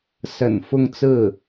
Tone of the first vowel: low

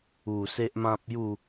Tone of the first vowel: low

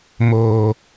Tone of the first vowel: low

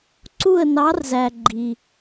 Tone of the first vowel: falling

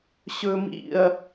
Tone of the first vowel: low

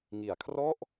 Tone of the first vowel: low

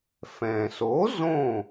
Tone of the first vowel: low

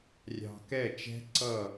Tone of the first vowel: low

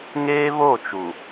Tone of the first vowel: high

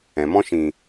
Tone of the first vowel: low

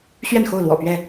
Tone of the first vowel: falling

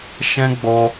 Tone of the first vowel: high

